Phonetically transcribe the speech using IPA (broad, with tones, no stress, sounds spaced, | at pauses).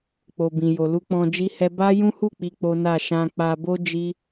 k͡p o˨ b ĩ˨ j o˨ l u˧ k͡p ɔ̃˧ d͡ʒ i˦ h ɛ˦ b a˦ j ũ˦ h u˦˨ k͡p i˧ k͡p o˦ n a˦˨ ʃ ã˧ k͡p a˧ b o˦ d͡ʒ i˦